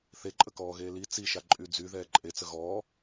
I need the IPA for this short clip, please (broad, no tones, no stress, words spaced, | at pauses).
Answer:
θeǃʼəkɔːɣeː li t͡siʃa ǃʼyd͡zy ðɛːǃʼet͡sə ɣɔː